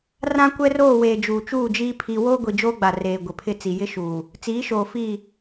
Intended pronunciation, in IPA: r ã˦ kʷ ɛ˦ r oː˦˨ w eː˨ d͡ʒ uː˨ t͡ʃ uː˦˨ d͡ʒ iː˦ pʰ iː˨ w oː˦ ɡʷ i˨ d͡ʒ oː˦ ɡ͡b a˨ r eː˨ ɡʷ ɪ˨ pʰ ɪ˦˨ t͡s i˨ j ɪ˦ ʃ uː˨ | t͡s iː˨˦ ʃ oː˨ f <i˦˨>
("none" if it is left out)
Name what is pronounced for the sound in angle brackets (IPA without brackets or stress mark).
i˦˨